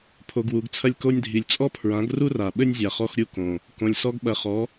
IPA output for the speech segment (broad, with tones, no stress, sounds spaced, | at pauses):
pʰ o˨ ɡ w u˨ ɡ t͡sʰ ɐ˧ lʲ k o˧ nʲ dʱ i˨ lʲ t͡sʼ ɔ˦ pʰ ɹ ã˨˦ ɡ r u˦ r a˨ ɓ ɘ˦ nʲ zʲ a˨ χ ɔ˧ x ɾʲ u˧ k õ˨ | k õ˨ lʲ s ɔ˧ ɡ ɓ ɐ˨ χ ɔ˨˦